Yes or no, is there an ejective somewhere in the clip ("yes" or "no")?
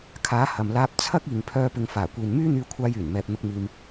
no